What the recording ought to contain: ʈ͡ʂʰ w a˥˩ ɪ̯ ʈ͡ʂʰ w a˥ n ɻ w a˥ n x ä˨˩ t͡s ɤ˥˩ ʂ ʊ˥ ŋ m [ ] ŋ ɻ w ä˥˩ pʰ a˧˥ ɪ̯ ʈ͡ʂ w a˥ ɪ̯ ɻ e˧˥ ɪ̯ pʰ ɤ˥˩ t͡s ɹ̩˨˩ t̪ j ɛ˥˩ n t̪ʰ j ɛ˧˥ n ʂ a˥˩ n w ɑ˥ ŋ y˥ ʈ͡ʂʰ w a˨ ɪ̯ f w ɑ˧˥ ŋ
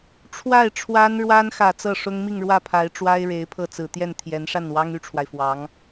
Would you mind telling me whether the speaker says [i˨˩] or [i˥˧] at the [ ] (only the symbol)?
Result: i˥˧